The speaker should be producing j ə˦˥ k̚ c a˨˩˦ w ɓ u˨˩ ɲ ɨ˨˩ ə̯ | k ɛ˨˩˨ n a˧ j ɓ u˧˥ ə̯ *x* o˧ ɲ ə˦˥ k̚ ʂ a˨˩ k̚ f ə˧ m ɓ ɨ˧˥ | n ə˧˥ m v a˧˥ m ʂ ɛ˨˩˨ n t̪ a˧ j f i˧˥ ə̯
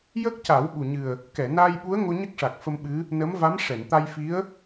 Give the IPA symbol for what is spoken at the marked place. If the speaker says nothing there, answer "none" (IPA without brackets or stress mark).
ŋ